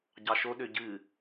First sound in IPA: ɟ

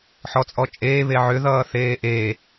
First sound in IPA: ħ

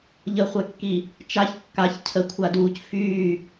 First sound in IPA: ʎ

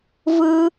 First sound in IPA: v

